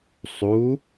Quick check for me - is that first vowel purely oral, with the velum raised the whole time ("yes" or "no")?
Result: yes